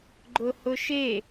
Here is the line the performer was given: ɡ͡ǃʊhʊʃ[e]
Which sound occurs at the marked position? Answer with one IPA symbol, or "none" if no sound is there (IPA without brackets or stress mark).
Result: e